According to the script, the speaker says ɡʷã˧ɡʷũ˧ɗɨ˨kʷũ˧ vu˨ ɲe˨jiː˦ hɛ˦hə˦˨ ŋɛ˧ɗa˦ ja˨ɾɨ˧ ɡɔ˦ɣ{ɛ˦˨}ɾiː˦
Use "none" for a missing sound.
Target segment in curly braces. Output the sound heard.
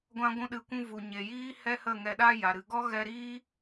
ɛ˧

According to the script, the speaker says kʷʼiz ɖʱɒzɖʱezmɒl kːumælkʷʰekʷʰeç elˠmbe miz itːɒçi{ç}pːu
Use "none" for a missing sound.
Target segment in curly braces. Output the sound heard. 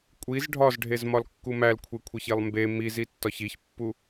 ç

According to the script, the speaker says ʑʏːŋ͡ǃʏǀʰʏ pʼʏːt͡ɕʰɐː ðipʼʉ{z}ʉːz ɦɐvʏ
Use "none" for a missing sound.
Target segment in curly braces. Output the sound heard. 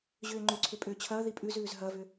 z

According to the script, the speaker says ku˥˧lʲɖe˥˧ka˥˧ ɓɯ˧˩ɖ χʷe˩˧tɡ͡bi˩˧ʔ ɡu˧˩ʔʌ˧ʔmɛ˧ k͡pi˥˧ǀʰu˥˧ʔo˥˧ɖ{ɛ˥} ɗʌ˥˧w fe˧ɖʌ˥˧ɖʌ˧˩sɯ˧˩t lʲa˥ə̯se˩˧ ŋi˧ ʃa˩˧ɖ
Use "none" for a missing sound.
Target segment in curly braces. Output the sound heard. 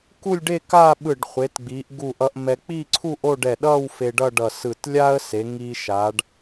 ɛ˧˩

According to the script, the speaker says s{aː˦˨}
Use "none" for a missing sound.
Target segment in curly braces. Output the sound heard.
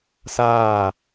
aː˦˨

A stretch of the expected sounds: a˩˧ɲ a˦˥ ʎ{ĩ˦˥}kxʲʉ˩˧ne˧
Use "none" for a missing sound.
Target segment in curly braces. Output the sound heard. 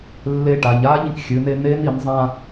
ĩ˧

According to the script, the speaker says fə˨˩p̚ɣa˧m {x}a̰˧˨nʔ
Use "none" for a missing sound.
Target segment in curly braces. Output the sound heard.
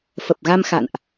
x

